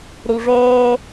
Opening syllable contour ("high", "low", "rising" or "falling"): low